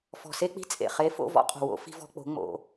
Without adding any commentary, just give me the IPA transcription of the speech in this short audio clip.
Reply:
f ɔ̤˨ s e˧ k͡p i̤˧ t͡sʼ ḛ˨ χ e˨˦ f o̰˦˨ v ɔ̰˦ qʼ o̤˨ w o̰˨˦ f i̤˧ v ɔ̤˧ k͡p o̤˨˦ ŋ͡m o̰˧

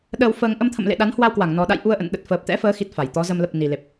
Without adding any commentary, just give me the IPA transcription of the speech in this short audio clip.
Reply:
ɗ əː˧ w f əː˧ ŋ ʔ ə˧ m t̪ʰ ə̰˧˨ m l ḛ˧˨ ɗ a˨˦ n h w a˧ w k w a˧˩ ŋ n ɔ˨˩ ɗ a̰˧˨ j ʔ u˧ ə̯ ʔ ə̰˧˨ n ɗ ə˨˩ t̚ f əː˨˩ p̚ t̪ ɛ̰˧˥ f əː˨˦ x i˨˩ t̚ f a˧˩ j t̪ ɔ˨˦ z ə˧ m l ə˨˩ p̚ n i˨˩ l e˨˩ p̚

